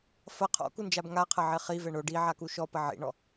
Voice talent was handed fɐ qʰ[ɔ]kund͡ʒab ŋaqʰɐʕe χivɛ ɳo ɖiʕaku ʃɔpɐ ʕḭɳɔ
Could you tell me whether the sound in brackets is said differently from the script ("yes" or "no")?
yes